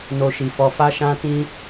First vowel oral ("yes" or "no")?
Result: yes